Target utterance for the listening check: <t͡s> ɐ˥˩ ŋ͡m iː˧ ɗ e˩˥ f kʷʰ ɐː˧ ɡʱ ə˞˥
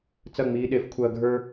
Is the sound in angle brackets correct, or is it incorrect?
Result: correct